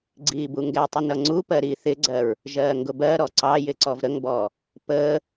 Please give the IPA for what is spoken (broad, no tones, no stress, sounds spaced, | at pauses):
ɡ͡ǀ iː b u ŋ ɡ ɛ tˤ ɪ n ʌ ŋ͡ǀ u p ɜ ɾ i θ ɪ ɡ͡ǀ ɜ ɹ | ʒ ɜː ŋ ɡ ʊ b ɜ ɾ ɔ ǀ ɑ j ɪ ǀ ɔ v ɾ ə ŋ b ɔː | p əː